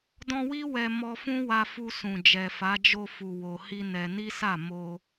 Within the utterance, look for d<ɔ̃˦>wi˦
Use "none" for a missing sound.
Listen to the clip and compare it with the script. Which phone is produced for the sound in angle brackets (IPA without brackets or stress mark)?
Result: ɔ̃˧